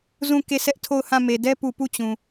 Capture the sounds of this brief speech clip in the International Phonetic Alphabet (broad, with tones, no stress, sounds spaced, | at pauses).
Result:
z ũ˦˨ k e˦˨ sʰ ɛ˦ ʔ tʰ o˦˨ ʊ̯ h ã˦˨ m e˨ d ɛ˦ p u˨ p u˦˨ t͡ɕ ũ˨